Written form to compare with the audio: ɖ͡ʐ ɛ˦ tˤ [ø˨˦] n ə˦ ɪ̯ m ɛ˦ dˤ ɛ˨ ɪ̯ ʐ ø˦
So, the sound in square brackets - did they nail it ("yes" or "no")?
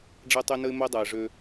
no